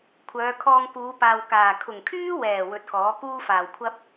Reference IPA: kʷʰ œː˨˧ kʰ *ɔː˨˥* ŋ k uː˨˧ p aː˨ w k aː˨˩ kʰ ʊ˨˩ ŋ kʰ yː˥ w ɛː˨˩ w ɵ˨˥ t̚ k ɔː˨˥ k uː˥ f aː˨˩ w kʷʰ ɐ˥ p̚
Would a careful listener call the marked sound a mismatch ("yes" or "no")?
yes